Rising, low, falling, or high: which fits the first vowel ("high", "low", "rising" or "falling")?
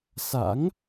rising